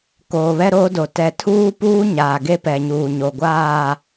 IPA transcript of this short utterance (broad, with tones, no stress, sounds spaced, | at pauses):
k oː˨ β ɛ˦ ɾ oː˦ d o˨ t ɛ˨ tʰ uː˦ p uː˦ ɲ aː˨ ɡ e˦ p ɛ˨ ɲ uː˨ ɲ o˨ ɡʷ aː˦˨